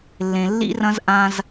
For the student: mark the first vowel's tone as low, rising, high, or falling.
low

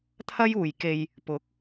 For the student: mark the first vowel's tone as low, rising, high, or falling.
high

